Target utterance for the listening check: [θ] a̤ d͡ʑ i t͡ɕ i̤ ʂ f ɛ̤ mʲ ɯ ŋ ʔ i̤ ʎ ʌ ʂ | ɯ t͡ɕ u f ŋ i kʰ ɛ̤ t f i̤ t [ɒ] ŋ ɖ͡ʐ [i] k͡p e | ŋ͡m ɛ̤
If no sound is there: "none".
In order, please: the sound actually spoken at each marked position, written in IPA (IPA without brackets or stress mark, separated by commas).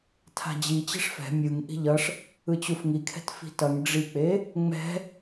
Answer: tʰ, ʌ, i